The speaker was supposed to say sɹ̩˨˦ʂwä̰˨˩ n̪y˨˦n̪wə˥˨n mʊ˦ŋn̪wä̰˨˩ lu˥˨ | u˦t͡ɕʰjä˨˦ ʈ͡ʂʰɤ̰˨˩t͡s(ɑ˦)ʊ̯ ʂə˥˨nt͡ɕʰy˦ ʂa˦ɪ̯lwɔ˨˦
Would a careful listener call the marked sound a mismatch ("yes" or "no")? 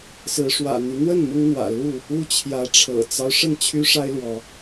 no